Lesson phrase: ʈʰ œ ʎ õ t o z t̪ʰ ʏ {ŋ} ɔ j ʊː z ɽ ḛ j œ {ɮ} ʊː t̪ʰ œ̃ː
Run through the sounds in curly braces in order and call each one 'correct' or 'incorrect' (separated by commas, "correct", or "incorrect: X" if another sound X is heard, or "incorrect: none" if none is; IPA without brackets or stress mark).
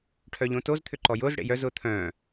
incorrect: ǃ, incorrect: z